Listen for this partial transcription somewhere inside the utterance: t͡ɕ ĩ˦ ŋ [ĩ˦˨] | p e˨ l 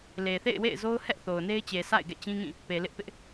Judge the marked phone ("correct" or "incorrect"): correct